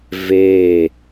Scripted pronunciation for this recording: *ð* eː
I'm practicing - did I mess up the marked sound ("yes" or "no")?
yes